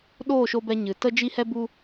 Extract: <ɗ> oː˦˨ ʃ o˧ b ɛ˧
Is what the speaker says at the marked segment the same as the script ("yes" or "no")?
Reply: yes